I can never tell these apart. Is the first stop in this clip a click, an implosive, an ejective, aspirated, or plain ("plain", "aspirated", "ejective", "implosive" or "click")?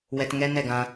plain